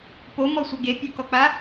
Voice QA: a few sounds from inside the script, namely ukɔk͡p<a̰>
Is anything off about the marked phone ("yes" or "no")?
yes